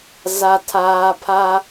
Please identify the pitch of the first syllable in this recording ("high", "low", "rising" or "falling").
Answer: high